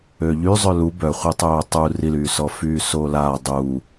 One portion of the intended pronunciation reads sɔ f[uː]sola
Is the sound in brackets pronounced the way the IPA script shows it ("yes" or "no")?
no